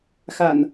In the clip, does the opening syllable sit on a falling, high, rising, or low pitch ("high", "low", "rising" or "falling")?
low